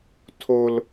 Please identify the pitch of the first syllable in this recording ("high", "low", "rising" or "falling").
high